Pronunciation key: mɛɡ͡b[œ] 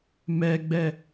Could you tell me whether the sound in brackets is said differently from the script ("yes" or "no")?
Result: yes